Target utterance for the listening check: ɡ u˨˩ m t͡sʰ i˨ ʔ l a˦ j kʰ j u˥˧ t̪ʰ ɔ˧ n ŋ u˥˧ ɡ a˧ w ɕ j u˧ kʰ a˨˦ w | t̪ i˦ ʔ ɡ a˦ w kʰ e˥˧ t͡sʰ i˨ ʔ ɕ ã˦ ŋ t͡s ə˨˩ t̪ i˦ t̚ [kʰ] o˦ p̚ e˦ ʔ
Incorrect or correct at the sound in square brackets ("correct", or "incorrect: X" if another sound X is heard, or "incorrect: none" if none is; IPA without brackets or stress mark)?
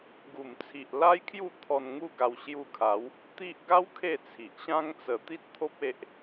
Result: incorrect: t̪ʰ